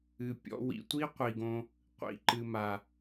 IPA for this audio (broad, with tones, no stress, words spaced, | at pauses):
ɨ˨pʲɔ̰˧ wḭ˨tʷi˦ qʷi˨ɡõ˧ | qʷḭ˨ǃɨ˨ma˨